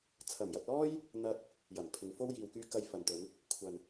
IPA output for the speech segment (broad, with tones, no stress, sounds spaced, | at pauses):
t͡sʰ ɐ˨˩ m j ɐ˨ t̚ l ɔː˥ j | n̪ ɐ˧ t̚ | j ɐ˨˩ m pʰ ɪ˨˧ ŋ f o˥ w j iː˨ w k yː˧ k ɐ˧ j f ɐ˨ n t̪ ɵ˨˧ n | kʷʰ ɐ˨ n